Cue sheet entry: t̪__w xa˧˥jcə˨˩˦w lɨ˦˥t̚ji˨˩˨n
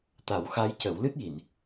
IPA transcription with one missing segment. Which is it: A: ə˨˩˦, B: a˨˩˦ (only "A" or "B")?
B